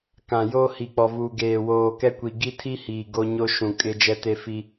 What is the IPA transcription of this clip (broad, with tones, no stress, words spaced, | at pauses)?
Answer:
kã˨jo˦ hi˨k͡pɔ˨vuː˨ ɡeː˨woː˨kɛ˦kʷi˨ ɡi˦tʰi˦hiː˨ ɡo˦ɲo˦ ʃũ˨kʼɪ˦ d͡ʒɛ˦te˦fi˦